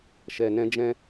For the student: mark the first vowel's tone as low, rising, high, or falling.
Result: low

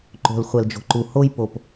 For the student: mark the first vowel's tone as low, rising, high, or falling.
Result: low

